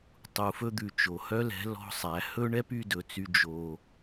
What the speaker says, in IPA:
tˤu˨fɵ˧d̪ʉ˨ t͡ʃo˨hœ˦lɛ̤˨˦ lɔ̤˧ sˤæ˨˦ hɵ˦ɳɛ˦p y˧dɵ˨t͡sy˧ d͡ʒo˧

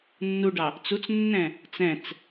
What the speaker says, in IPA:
nːuɖɑ | t͡sut͡snːɛ̃ | t͡sɛ̃t͡s

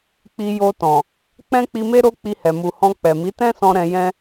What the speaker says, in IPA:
k͡pi˧jo˧tɔ̃˨ | k͡pɛ̃˦k͡pi˧me˦ ɾo˦ k͡pi˧hɛ˨ mu˨hɔ̃˧ k͡pɛ˨mi˨˦tɛ̃˦ sɔ̃˦ɾɛ̃˧jɛ̃˦

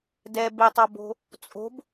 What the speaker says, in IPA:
dɛ betˤɒbo̤ | t͡sʼo̤b

